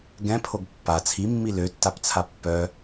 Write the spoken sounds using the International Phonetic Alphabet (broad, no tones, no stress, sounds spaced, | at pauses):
ɡ ɛ̃ pʰ o ɡ pː a t͡sʰ i mː i l ø tː a p t͡sʰ a pː œ